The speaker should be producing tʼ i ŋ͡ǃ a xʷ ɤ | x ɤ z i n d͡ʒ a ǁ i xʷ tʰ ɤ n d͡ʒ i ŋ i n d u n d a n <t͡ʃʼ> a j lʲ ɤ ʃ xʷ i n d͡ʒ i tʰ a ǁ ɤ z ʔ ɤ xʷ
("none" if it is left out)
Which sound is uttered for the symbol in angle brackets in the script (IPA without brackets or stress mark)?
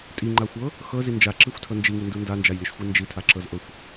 d͡ʒ